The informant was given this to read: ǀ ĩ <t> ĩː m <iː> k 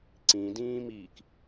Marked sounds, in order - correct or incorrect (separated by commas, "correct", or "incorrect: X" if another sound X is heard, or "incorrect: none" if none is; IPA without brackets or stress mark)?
incorrect: d, correct